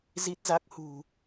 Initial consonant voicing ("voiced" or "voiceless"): voiced